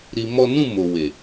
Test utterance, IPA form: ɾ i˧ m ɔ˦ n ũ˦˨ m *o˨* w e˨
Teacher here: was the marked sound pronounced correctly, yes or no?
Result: yes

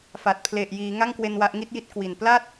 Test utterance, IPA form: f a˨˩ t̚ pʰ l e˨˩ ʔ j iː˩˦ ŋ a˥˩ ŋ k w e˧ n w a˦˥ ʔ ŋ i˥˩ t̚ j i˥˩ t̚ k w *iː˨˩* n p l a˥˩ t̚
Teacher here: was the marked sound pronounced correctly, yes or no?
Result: no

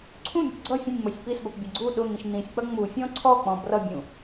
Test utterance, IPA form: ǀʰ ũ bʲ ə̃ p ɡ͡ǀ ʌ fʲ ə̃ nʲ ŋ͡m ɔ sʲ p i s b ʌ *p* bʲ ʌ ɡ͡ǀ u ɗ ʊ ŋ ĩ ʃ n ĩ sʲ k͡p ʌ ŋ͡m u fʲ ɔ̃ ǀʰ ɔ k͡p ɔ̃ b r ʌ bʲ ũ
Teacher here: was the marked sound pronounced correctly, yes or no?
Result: yes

